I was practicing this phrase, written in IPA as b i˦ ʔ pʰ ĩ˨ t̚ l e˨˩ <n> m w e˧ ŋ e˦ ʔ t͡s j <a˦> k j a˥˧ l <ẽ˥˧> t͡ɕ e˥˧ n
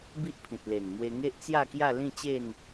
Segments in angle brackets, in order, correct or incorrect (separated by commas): correct, incorrect, incorrect